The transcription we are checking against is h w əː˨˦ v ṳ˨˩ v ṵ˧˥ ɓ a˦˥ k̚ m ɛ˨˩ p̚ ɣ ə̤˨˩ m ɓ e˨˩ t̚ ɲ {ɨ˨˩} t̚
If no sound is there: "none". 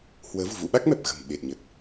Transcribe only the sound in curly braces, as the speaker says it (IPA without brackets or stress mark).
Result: ə˨˩